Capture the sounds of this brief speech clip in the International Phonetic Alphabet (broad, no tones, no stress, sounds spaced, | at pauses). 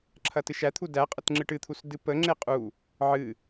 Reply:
ǁʰ ɐ t ɨ ʃ æ t̪ʰ u d æ qʼ ə t ŋ͡ǁ ɨ ʈ ɨ t̪ʰ u s d ɨ p ə ŋ͡ǁ e qʼ u | ʕ ɨ